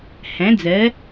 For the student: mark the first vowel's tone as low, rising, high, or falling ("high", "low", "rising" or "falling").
rising